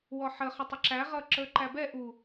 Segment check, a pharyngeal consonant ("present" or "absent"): present